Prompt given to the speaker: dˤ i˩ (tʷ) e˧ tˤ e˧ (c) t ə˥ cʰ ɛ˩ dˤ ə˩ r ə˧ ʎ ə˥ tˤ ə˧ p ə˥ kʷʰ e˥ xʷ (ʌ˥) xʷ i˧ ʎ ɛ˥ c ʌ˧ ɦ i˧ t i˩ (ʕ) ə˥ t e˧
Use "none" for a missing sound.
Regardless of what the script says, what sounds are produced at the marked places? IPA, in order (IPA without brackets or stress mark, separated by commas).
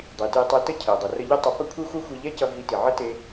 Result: t, none, ʌ˥, ʕ